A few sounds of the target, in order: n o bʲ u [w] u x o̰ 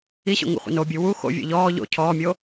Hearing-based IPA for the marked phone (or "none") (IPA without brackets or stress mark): w